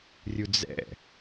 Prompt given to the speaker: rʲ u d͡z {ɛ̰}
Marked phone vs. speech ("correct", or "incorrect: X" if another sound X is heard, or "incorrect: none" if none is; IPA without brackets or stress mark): correct